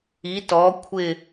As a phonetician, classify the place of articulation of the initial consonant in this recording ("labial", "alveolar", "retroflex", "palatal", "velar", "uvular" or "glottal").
alveolar